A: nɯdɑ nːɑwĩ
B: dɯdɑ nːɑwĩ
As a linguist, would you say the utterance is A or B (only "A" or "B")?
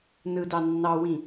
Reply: A